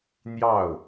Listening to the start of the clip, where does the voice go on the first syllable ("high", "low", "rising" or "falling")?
falling